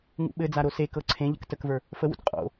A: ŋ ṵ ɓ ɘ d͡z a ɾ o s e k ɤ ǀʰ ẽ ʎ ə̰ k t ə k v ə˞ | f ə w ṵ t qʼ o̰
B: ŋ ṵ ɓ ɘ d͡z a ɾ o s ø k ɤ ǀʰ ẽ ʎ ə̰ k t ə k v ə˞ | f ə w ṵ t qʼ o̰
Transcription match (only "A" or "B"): A